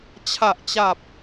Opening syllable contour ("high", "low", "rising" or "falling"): low